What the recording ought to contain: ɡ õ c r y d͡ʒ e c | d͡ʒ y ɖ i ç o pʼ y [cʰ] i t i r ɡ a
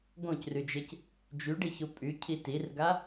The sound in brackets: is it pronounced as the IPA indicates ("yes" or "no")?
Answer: yes